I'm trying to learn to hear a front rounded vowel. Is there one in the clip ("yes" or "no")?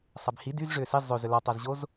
yes